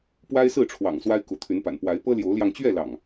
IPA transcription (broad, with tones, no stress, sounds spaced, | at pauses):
p w a˦ ɪ̯ s ɹ̩˥˨ ʈ͡ʂʰ w ɑ̰˨˩ ŋ s w a˦ ɪ̯ k u˨˦ t̪ʰ y˨˦ n p a̰˨˩ n p w a˨˦ ɪ̯ p ɤ˦ l j o˨˦ ʊ̯ l j ɑ˧ ŋ t͡ɕ ɥ ɛ˥˨ l ɑ̰˨˩ ŋ